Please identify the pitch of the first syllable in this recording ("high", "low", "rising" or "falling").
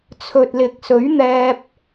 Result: low